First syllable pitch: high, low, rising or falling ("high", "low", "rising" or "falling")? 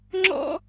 high